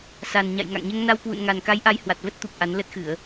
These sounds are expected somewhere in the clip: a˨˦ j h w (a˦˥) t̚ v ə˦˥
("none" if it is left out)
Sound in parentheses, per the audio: a˨˩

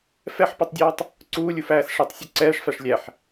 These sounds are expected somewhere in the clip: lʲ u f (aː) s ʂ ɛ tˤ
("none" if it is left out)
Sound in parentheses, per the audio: æː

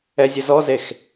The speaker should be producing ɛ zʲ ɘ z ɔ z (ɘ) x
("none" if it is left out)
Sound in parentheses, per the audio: e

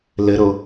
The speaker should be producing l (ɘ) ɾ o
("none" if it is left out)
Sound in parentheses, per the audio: ɘ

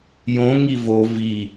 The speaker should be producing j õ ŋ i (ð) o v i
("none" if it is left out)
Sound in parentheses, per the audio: v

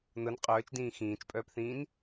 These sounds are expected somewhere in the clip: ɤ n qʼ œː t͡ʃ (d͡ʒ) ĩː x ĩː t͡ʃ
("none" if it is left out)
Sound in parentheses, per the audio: d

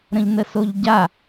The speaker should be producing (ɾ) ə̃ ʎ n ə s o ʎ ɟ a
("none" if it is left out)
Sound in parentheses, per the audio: ɾ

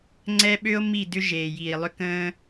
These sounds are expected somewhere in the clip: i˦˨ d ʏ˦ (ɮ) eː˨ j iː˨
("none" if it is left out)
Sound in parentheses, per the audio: ʒ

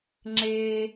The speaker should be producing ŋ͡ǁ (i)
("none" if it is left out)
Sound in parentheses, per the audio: e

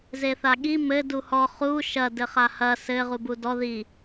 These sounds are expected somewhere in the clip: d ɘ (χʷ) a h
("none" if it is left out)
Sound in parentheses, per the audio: χ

